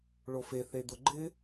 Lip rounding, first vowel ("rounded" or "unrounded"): rounded